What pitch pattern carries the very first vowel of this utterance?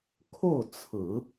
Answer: falling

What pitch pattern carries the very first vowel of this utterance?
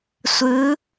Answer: rising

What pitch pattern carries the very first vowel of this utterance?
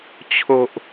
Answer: low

